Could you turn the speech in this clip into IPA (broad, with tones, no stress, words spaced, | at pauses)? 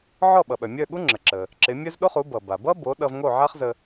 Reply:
ʕɔ˥˩ɓʌ˩ɓœ˩ mʲœ˥˩ɠu˥ ŋ͡ǁə˩ǁə˩ | ǁɪ˩˥mʲœ˥z ɗo˥χu˩˥ bʌ˩ba˩ bʌ˥bo˩˥ ɗʌ˧vŋo˥˩ʕa˥χzə˧